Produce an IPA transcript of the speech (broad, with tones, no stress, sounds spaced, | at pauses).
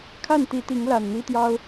kʰ a˥˨ n t̪ i˨˦ t̪ i˨˦ ŋ l a˨˩ n n̪ i˦ t̪ j ɑ˦ ʊ̯